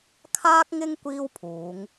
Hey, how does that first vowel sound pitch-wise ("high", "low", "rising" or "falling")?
high